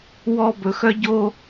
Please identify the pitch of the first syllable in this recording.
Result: high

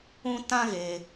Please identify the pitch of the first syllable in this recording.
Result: high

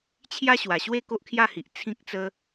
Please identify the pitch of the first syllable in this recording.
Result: high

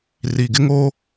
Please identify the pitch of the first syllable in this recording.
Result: low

